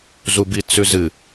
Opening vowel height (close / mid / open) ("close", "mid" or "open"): close